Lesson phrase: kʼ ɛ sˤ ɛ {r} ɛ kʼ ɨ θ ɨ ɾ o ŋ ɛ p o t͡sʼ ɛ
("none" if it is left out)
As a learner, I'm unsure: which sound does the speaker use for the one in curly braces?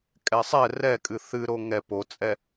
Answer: r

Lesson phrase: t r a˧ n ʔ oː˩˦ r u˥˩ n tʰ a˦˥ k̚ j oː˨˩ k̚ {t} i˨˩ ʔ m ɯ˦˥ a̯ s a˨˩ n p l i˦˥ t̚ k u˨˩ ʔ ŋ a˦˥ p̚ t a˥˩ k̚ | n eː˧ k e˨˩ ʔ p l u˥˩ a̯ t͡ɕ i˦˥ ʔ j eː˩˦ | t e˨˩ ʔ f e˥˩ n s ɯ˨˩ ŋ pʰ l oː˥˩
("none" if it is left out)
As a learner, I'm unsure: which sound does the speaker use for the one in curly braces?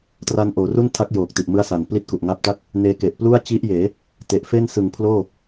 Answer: t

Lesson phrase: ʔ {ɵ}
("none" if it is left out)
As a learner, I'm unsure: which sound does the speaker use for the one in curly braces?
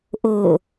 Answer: o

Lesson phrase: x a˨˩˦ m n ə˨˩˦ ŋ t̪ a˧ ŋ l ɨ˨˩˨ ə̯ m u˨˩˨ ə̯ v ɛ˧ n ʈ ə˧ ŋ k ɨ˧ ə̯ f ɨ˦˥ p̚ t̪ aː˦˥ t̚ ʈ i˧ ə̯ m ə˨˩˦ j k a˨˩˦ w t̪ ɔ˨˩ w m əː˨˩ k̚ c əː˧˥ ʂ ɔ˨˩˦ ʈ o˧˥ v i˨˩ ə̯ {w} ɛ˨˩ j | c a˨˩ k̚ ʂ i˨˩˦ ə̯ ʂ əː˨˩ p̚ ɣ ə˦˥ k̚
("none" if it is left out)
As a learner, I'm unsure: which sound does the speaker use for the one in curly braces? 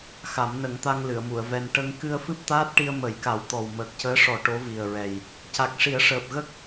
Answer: ɹ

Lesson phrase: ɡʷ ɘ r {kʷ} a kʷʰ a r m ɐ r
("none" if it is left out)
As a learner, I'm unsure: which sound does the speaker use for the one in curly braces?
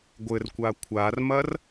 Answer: kʷ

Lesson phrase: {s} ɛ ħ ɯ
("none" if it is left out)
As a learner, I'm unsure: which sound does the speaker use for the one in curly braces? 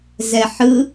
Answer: z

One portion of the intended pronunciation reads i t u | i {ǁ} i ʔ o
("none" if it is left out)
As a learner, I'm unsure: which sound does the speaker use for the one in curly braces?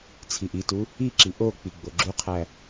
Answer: ǁ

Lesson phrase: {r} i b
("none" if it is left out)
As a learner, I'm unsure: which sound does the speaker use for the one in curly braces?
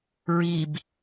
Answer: ɹ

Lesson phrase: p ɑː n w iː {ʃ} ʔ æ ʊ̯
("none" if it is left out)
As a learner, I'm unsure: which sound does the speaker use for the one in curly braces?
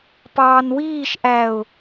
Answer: ʃ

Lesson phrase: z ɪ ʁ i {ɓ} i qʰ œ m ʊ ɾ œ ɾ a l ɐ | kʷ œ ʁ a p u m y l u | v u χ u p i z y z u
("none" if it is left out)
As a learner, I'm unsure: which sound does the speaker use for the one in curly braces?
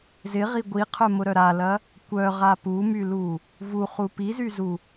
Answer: ɡʷ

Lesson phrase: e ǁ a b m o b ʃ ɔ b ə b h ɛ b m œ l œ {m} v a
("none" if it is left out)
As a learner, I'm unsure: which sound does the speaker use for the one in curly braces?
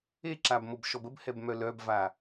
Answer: b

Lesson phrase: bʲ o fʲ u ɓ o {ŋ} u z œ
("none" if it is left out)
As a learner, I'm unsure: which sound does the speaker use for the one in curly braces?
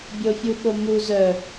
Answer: m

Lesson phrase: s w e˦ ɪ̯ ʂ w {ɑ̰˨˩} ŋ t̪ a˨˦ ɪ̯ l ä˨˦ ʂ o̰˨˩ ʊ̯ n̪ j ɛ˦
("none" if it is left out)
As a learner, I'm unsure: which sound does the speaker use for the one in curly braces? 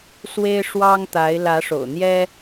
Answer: ɑ˦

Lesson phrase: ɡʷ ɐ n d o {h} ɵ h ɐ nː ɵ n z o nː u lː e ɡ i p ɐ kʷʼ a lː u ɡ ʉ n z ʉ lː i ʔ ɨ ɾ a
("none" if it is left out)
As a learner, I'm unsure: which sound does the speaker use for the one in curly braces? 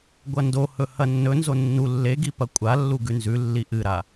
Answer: h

